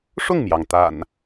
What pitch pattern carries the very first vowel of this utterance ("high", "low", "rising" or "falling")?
falling